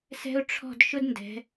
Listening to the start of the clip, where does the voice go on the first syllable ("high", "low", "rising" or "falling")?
high